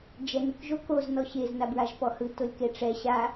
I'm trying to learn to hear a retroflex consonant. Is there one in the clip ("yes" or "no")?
yes